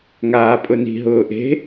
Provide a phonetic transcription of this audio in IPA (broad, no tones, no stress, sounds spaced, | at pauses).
ŋ aː pʼ ʊ n i̤ ɦ ʊː ʔ e̤